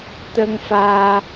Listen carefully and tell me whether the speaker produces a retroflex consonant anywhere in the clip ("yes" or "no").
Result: no